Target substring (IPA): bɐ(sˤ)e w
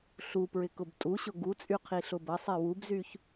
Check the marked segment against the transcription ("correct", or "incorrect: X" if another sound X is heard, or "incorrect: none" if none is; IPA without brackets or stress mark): correct